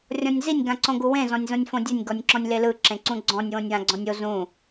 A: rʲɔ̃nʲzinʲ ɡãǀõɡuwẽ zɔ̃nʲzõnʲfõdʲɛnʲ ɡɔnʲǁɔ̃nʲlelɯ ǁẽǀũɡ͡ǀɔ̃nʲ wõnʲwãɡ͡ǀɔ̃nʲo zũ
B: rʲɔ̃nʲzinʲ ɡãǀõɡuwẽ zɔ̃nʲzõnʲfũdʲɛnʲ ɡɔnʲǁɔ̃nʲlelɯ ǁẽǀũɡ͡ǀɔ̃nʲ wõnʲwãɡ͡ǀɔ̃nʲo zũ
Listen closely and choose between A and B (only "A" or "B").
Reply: A